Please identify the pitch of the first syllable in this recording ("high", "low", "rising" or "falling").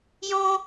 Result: high